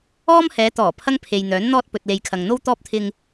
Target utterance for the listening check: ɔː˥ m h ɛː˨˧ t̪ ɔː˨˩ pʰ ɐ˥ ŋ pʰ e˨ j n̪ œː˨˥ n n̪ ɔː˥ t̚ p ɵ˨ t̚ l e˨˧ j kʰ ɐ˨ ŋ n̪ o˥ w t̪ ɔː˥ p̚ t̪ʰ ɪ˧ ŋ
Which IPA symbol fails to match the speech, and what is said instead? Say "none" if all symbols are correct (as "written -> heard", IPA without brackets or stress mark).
none